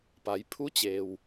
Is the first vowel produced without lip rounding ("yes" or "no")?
yes